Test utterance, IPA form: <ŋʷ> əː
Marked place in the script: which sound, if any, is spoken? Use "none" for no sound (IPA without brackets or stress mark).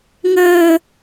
ŋ